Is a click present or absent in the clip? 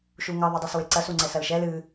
present